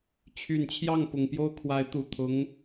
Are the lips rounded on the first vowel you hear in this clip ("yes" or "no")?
yes